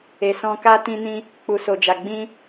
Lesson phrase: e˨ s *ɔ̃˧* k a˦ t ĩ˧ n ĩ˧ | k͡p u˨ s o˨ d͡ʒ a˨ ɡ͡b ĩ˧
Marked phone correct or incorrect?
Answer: correct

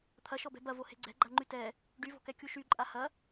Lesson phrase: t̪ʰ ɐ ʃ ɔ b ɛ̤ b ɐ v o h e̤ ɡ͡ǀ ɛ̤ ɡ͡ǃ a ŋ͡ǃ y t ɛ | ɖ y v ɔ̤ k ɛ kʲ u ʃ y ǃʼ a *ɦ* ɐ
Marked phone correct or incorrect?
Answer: incorrect: h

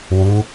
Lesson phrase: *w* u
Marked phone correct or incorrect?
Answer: correct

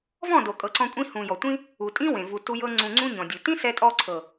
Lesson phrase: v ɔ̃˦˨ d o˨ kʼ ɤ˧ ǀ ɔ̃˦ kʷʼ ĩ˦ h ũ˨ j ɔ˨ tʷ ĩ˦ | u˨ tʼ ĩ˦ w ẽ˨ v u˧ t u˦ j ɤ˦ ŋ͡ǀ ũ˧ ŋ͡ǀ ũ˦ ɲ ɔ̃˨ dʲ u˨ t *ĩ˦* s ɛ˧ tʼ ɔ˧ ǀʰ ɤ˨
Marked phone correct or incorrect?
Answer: correct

